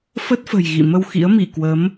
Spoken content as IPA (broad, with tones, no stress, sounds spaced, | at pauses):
f ə˦˥ t̚ f ə̤˨˩ j ɣ ḭ˧˨ m ə˧ w x ḭ˧˥ ə̯ m i˧˩ k w ə˨˦ m